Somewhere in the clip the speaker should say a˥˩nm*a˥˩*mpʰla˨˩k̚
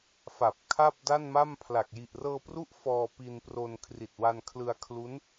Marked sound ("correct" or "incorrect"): correct